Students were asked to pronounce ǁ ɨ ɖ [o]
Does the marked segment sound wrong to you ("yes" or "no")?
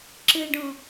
yes